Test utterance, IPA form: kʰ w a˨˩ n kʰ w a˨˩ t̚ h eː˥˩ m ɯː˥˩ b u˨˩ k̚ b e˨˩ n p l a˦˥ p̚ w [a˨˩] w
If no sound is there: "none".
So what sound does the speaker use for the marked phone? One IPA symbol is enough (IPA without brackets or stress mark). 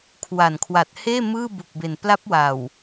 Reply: a˨˩